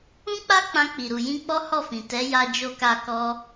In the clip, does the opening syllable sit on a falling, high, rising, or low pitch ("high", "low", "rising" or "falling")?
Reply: high